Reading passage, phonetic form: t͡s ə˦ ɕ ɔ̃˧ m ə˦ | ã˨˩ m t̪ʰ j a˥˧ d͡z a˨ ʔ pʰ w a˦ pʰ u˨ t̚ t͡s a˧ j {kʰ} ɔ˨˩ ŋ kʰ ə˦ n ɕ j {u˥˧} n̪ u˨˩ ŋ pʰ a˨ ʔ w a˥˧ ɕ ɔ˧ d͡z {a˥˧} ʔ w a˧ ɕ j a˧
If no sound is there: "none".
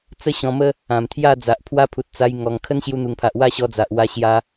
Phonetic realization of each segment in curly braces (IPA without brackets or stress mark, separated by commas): ŋ, u˧, a˨